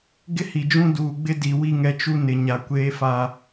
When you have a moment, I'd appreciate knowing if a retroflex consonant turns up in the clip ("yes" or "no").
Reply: no